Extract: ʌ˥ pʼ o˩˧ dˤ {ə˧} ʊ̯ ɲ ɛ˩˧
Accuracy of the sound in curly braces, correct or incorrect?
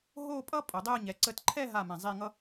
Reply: incorrect